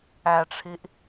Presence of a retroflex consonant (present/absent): present